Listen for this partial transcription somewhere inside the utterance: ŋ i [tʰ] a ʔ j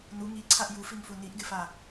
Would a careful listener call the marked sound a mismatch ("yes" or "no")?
yes